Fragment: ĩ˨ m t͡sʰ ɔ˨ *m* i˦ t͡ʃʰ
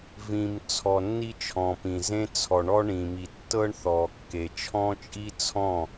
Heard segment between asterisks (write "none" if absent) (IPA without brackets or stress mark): nː